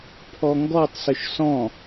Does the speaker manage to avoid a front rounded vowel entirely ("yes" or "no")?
no